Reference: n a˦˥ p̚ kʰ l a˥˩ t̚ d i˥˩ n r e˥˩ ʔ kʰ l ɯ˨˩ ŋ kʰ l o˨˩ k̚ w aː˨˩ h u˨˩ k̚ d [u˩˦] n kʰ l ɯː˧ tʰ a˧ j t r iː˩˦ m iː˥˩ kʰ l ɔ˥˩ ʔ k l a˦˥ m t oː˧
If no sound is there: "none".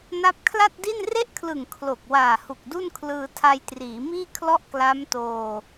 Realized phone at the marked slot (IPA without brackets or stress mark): u˥˩